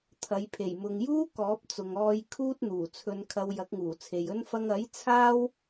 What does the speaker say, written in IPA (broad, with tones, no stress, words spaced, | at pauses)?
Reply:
t̪ʰɐ˨˧jpʰe˨˩j mʊ˨ŋjuː˥ kɔː˨˥p̚t͡sʊ˨ŋ ɔː˧j kʰuː˥t̚n̪uː˨˩t͡sʰɵ˧nkʰɐ˧w jɐ˨˥k̚ŋuː˨˩t͡sʰe˨jɵ˥n fɐ˧ŋɐ˨˥j t͡sʰaː˥w